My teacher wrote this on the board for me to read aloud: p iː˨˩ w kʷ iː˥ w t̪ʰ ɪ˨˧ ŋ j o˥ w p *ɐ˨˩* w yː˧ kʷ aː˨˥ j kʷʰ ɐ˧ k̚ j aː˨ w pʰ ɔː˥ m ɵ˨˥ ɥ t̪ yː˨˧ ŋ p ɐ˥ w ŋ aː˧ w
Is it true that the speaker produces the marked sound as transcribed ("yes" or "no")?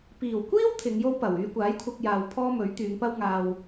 yes